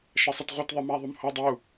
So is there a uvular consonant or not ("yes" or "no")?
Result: yes